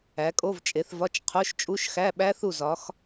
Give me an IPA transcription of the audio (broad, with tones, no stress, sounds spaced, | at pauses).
æ˨˦ kʼ o˧˥˧ v t͡ʃʼ e˨˦ θ v ɒ˧˥˧ t͡ʃ qʰ o˧˥˧ ʃ t͡ʃʼ u˧˥˧ ʃ x æ˧˥˧ ɓ æ˦˥ θ u˦˨ z ɒ˨˦ x